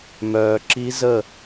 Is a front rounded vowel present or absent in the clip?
present